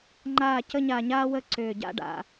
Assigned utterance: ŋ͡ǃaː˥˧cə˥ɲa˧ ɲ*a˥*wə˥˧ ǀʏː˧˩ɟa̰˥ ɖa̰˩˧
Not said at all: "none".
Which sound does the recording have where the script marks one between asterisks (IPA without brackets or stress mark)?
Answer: aː˥